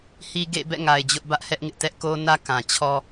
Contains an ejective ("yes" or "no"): no